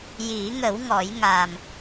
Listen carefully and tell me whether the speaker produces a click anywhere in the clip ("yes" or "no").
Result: no